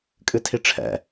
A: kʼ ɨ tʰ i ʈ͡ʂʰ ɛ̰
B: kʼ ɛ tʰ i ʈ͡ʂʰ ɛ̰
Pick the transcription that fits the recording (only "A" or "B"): A